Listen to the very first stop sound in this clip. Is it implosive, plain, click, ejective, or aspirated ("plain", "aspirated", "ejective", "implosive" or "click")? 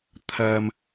aspirated